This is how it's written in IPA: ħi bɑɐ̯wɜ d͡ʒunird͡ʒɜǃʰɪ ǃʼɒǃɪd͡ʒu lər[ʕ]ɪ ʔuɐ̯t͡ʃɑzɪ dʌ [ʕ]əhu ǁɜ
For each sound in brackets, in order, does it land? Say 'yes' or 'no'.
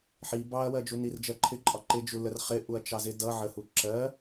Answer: no, yes

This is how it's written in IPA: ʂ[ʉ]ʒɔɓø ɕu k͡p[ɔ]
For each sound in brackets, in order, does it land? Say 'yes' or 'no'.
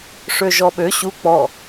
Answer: no, yes

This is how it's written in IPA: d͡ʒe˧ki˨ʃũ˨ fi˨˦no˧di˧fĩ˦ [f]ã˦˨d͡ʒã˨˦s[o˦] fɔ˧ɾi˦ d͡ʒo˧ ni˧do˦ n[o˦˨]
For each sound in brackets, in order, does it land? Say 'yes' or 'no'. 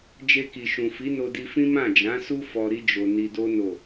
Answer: no, no, yes

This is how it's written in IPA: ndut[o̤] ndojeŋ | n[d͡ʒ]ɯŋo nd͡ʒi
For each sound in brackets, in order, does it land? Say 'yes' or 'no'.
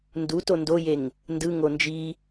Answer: no, no

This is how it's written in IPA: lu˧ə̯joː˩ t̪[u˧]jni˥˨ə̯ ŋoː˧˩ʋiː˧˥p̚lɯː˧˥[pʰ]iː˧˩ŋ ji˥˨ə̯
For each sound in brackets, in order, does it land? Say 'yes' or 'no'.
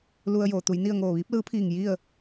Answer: no, yes

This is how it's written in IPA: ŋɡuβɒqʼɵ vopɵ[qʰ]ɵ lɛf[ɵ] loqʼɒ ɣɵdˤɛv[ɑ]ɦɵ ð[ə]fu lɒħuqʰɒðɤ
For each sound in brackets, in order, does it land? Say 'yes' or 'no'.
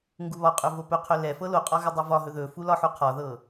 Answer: yes, no, no, no

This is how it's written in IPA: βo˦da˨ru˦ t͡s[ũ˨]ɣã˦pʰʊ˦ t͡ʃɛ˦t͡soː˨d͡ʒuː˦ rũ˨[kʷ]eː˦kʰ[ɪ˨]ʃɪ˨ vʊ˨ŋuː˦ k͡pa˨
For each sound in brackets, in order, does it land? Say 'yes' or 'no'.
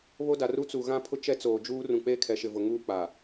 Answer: no, no, no

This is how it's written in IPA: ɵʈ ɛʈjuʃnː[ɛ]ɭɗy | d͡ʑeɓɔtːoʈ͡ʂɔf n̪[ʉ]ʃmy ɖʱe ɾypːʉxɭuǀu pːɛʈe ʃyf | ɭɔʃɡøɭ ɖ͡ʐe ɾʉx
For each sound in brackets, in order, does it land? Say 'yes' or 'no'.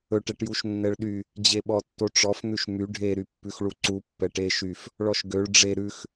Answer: yes, yes

